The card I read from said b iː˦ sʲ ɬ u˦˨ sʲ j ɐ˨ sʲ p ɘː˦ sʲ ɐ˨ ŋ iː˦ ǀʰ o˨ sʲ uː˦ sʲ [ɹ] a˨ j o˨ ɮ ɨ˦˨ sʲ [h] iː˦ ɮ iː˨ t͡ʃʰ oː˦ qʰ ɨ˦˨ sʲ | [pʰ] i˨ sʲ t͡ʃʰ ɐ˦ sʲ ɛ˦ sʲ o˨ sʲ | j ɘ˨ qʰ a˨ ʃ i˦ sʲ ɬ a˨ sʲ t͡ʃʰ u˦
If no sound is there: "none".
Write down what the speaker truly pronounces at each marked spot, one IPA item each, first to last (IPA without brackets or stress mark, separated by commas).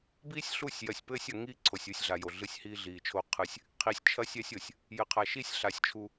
ɮ, h, qʰ